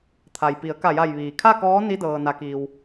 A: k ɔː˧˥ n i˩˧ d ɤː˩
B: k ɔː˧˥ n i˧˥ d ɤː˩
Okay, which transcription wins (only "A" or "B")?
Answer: B